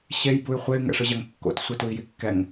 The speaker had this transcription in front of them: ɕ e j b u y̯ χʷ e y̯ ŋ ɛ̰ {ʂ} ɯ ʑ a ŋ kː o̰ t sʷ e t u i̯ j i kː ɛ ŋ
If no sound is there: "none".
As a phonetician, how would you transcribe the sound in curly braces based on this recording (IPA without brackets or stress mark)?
ʂ